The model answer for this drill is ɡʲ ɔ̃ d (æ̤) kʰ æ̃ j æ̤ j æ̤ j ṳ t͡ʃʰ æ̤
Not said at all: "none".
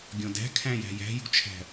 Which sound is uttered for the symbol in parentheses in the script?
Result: æ̤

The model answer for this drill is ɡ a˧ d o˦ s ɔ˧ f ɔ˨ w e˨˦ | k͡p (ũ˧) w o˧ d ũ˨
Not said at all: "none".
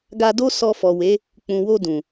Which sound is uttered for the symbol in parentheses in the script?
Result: ũ˨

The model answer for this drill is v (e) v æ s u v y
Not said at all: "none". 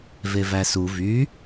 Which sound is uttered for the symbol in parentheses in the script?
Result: e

